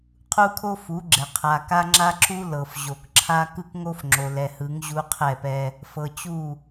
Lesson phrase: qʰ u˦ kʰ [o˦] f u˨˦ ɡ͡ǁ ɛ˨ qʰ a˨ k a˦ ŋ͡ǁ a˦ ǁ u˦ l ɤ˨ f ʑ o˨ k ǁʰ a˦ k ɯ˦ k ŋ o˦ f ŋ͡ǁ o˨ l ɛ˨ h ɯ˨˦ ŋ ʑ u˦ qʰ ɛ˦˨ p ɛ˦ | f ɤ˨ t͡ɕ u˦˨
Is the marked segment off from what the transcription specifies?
no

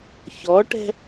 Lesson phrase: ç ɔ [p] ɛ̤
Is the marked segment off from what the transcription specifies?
yes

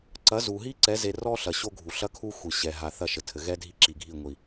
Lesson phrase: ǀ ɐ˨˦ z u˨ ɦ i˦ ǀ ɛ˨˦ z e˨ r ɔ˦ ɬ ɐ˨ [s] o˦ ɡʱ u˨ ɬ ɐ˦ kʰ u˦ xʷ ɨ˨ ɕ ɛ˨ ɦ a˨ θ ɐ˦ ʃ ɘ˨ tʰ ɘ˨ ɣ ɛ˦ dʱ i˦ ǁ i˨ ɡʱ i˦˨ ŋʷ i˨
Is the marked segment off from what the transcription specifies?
yes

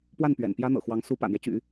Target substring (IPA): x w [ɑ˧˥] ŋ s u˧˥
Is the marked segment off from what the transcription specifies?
no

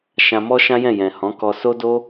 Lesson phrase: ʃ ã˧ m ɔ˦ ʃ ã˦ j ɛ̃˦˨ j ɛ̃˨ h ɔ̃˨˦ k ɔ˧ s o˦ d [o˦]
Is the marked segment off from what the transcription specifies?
no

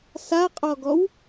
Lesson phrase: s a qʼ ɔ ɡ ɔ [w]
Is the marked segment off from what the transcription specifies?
no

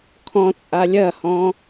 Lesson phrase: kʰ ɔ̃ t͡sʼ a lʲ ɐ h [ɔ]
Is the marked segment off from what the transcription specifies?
yes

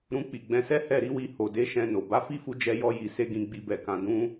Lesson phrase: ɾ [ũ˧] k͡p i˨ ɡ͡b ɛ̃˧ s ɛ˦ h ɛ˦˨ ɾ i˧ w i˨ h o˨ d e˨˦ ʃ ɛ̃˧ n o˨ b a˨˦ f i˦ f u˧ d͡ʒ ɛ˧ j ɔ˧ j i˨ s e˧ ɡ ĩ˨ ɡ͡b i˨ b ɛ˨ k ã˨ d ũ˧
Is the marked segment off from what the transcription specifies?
no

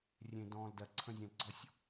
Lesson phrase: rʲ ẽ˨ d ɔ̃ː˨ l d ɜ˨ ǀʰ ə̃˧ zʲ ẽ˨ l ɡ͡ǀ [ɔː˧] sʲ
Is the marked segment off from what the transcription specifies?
yes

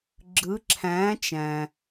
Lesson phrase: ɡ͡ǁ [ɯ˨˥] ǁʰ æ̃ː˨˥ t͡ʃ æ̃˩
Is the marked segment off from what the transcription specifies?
no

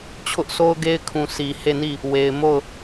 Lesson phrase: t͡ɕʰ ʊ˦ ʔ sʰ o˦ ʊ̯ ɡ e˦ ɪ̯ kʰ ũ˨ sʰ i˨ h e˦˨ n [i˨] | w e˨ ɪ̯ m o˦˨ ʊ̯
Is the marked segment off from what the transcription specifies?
yes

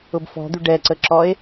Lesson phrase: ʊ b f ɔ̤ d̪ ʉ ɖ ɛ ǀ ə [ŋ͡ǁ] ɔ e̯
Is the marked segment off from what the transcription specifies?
yes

